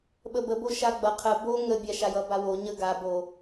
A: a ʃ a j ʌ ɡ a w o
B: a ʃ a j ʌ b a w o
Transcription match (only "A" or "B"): B